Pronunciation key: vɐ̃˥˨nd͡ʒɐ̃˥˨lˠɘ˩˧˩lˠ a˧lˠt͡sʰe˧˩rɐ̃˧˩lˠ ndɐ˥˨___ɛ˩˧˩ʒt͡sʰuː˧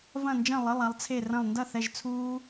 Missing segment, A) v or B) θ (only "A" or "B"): B